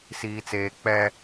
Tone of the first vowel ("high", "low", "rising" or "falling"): low